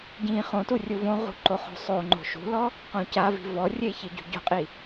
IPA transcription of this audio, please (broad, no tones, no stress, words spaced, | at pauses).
ɟĩ χõtu rʲuvõʁṳ ǃoχo̤sˤoŋ͡ǃo̤ ʃṳlɔ | qõcavi̤ vɔrʲe çiɟṳɟo̤qʼi